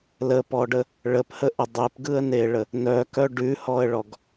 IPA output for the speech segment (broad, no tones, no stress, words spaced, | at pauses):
ləpɔɖə | ɭəphəʔə dˤepɡɯə̯neɭə | nœkœ ɖʉhɔə̯ɭɔɡ